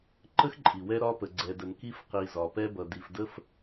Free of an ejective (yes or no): no